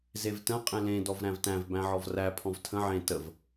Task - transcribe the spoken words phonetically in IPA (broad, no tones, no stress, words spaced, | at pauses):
zevtə̃ qʼẽlẽ dɔvɾæ̃vtæ̃v bæ̃ʕɔvræ pʰɔ̃vtʰə̃ ʕẽ təv